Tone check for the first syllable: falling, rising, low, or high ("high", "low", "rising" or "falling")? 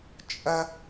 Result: high